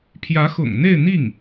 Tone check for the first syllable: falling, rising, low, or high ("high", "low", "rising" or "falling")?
rising